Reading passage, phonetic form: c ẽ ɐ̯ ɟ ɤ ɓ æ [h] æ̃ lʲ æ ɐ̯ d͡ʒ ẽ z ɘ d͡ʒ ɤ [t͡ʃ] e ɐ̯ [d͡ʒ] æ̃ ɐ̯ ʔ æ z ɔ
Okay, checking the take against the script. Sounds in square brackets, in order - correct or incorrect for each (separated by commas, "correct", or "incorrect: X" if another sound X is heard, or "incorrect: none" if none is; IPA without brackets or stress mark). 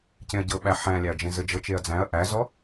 incorrect: ħ, correct, incorrect: d͡z